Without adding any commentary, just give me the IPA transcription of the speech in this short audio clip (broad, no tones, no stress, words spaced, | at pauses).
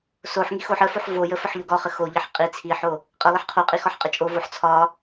soħŋi xoħ əfoħ vojə fəħʎoɡɒχə xoʎəħ qʼi t͡sʰiħo | qʼə lˠəħqʰoqʼi xɒħqʼət͡ʃʼovoħ t͡sʰɒ